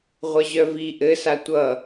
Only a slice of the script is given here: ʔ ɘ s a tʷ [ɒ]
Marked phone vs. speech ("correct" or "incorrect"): incorrect